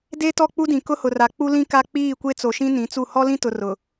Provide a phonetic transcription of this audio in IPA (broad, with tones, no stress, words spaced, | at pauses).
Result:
de˦ tɔ˦˨k͡pu˦dĩ˨ kʊ˦hʊ˨ra˨ k͡pu˦lĩ˦ ka˦ k͡piː˦˨kʷe˦t͡so˨ʃĩ˦ nĩ˨˦t͡su˦˨ hɔ˦lĩ˦tʊ˨ rʊ˨